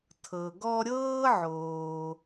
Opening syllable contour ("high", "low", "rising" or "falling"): low